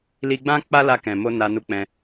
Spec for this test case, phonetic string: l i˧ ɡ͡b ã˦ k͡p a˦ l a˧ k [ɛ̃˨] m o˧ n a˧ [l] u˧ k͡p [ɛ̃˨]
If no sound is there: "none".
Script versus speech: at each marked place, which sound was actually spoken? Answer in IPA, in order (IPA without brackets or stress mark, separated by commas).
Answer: ɛ̃˨, n, ɛ̃˧